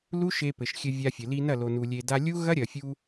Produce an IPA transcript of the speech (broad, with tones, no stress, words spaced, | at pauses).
lu˦ ʃe˧pɘ˨ʃxʲɘ˧ vʲa˧fʲɘ˨ li˧nɐ˦˨lo˨nu˨ lʲe˨da˧ lʲu˦ɣɐ˦ɾʲɐ˨fʲu˧